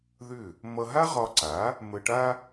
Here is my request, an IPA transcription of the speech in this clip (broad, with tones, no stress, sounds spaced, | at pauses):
ð ʏ˥˩ | m ʌ˧ ɦ a˥ ʁ ɒ˧ ǀ a˩˥ | m ə˧ ʈ a˥